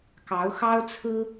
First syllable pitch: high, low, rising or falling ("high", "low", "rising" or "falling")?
rising